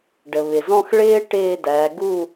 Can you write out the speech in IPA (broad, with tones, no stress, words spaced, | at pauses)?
ɖə˩βɪ˩zɔ̃˥˧x ɭɪː˥ ʈɪː˥˧dæ˨˦ ɡu˥˧